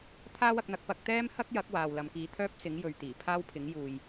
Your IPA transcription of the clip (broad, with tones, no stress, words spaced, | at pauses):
t̪ʰaː˥wɐ˧k̚n̪ɐ˧k̚ pɐ˧k̚t̪ɛː˥m hɐ˥k̚jɐ˨˥k̚ waː˨wlɐ˨mkiː˨˧ t̪ʰœː˥p̚sɪ˨˥ŋ jɵ˨ɥ t̪iː˨˩pʰaː˥wpʰɪ˨˥ŋ juː˨j